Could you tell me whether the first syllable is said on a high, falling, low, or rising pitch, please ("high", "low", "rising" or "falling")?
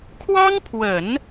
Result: high